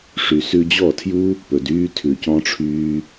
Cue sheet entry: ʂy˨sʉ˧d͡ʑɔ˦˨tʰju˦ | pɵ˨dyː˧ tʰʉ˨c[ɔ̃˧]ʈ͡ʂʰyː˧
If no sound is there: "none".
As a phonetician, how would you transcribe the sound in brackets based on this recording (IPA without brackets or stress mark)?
ɔ̃˧